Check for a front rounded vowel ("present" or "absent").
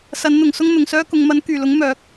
present